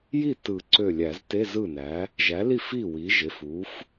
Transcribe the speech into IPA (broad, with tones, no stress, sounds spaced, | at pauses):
j i˥˩ t ɯ˨˩˦ ǀ ø˧˩ lʲ æ˨˩˦ z t e˧˥˧ z ɯ˥˩ n æ˩˥ | ʒ æ˩˥ l i˥˩ f i˥˩ w i˩˥ ʒ e˩˧˩ f u˩˥ f